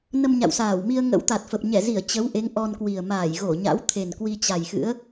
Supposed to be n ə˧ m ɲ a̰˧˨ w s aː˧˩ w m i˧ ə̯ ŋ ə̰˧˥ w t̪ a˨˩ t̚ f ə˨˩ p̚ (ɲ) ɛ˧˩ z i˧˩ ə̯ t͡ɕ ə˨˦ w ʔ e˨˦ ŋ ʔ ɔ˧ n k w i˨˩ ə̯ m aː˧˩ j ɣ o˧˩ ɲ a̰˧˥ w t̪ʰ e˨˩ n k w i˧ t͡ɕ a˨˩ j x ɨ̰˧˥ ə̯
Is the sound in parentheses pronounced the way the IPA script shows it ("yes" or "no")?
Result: yes